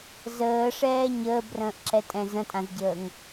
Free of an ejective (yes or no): no